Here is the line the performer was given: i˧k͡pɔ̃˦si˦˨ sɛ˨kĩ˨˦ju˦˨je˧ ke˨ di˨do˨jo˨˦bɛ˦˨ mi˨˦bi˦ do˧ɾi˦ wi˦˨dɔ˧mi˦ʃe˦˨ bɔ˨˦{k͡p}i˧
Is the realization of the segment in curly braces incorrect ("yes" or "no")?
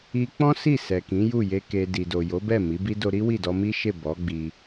yes